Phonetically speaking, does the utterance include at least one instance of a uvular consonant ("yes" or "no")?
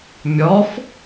no